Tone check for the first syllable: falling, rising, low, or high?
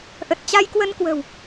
low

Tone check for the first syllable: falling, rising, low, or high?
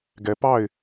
low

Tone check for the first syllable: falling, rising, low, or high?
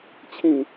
low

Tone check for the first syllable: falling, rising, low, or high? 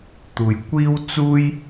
low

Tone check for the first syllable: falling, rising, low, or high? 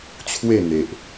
falling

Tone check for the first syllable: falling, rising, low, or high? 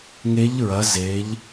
rising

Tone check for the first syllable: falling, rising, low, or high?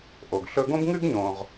low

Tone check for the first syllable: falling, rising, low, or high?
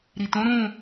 low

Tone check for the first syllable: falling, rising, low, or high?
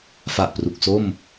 low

